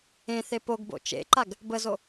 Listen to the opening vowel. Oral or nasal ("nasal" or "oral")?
nasal